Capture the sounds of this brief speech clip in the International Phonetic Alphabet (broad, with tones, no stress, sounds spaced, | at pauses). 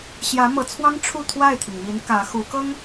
ɕ j ä˧˥ m ɤ˧˥ t͡sʰ w ɑ˥ ŋ ʈ͡ʂʰ u˥˧ t̪ʰ w a˥˩ ɪ̯ t̪ʰ i˩ ŋ m i˧˥ n k ä˧˥ x u˧˥ k ɤ˥ ŋ